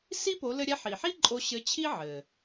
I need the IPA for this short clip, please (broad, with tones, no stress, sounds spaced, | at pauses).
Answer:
s i˥ p o˧˥ l ɘ˥ ɾʲ ɛ˥ ħ i˩ ħ i˥ ǃʼ o˧ ɕ ɘ˧˥ t͡ɕʰ i˥ ʕ ɘ˩